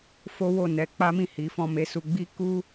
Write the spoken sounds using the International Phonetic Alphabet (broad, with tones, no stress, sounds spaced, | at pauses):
f o˦ w o˦˨ n ɛ˧ k͡p a˦ m ĩ˦˨ h i˨˦ f ɔ̃˧ m e˧ s u˧ ɡ͡b i˦ k u˦